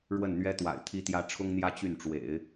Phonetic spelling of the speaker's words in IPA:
ɻ w ə˥˩ n n̪ ɥ ɛ˥ t̪ w a̰˨˩ ɪ̯ t̪ʰ i˥ t̪ j ä˥ ʈ͡ʂʰ ʊ˥ ŋ n̪ j ä˥ t͡ɕ y˥˩ n ʈ͡ʂ w ḛ˨˩˦ ɪ̯

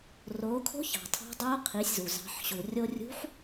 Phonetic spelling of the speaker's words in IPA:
r oː˩˧ kʰ o̤˧˥ ç ɑ̤˩ tʰ ɑ̤˧˥ dˤ oː˧˥ qʰ i˩˧ sʲ z u˩ z ɑ̤˩˧ ħ ɕ u˩ rʲ o˧ rʲ ṳ˧˥ ħ

